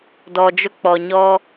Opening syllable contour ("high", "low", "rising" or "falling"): low